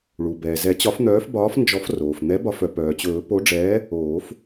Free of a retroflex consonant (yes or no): no